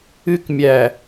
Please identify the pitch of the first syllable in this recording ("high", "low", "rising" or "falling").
high